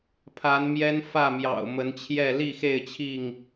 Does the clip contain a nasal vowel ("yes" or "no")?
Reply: no